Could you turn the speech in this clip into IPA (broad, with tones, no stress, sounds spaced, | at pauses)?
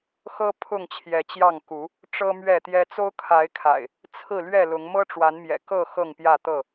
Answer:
x ɤ˦ pʰ ʊ˥˨ ŋ t͡ɕʰ j ɛ˨˦ t͡ɕ j ɑ˥˨ ŋ k u˨˦ | ʈ͡ʂ ɤ˦ m ɥ ɛ˥˨ t̪ j ɛ˦ t͡s o˦ ʊ̯ kʰ a˨˦ ɪ̯ kʰ a̰˨˩ ɪ̯ | t͡sʰ ɹ̩˥˨ l ɥ ɛ˥˨ l ʊ˨˦ ŋ m ɤ˦ ʈ͡ʂ w a˨˦ n m j ɛ̰˨˩ k ɤ˥˨ x ɤ˥˨ ŋ p j ä˥˨ t̪ ɤ˥˨